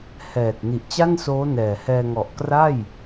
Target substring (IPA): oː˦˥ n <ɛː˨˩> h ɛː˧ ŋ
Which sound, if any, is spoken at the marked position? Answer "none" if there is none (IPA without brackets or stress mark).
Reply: ɛː˨˩